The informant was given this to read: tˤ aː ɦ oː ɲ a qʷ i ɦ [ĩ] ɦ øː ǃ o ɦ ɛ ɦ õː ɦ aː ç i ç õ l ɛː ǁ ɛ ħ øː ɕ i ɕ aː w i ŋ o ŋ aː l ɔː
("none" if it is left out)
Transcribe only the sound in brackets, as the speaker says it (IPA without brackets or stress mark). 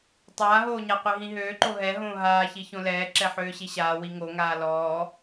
ĩ